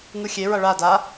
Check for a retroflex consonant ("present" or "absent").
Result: present